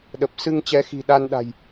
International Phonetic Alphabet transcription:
ɗ ə˨˩ p̚ s ɨ˧ ŋ t͡ɕ ɛ˨˦ x i̤˨˩ ɗ a˧ n ɗ a̤˨˩ j

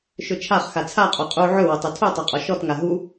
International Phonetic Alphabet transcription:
ʃ ɵ t͡ʃʰ a χ x a t͡sʰ a qʼ o qʼ u ʕ ɵ w ə tˤ o tʰ u tˤ o qʼ ɔ ʃ ɔ t ŋ a ɦ u

